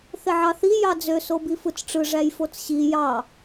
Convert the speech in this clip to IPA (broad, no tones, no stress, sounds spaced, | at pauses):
θ e ʕ ɑ θ i j ɑ d͡z ø s o b i f ɯ t͡s ʈ͡ʂ ɯ ʐ æ j f o t͡s ɕ i j ɑ